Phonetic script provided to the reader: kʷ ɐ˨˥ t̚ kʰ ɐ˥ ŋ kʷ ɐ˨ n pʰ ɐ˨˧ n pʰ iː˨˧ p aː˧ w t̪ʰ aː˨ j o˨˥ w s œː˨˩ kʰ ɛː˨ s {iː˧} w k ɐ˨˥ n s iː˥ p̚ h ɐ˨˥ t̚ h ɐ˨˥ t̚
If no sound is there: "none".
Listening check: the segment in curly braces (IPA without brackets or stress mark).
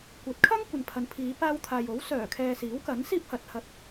iː˨˥